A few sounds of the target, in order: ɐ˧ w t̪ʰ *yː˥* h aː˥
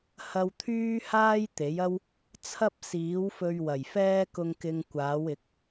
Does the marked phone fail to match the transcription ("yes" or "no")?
no